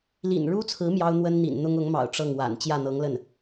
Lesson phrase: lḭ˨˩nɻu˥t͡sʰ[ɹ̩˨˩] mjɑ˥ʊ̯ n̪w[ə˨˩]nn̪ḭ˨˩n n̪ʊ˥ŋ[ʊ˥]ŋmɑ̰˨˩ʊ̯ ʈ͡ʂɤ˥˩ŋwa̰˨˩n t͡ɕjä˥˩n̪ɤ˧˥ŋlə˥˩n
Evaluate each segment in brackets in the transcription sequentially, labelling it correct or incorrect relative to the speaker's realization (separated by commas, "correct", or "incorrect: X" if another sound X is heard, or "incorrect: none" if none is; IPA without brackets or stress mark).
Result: incorrect: ɹ̩˧˥, incorrect: ə˥, incorrect: ʊ˧˥